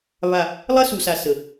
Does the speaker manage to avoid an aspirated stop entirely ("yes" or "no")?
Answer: yes